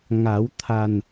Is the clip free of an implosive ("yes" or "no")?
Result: yes